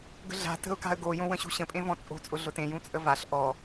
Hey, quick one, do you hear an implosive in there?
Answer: no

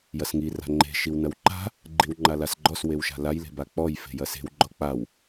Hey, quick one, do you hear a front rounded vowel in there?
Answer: no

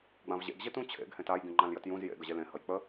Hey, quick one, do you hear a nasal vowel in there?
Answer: yes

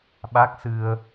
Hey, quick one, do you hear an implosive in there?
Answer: yes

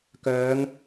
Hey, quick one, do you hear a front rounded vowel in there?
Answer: yes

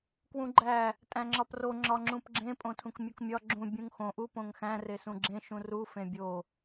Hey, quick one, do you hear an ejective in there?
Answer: yes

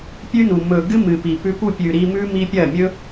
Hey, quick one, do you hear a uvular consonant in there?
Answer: no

